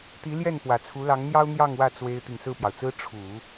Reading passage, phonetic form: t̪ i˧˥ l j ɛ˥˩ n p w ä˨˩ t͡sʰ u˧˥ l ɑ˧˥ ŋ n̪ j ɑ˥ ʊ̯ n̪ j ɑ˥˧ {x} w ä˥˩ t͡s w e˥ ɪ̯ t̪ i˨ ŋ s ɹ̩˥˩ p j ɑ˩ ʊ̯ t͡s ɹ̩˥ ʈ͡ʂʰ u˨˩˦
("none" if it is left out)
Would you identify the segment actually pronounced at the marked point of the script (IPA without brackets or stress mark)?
ŋ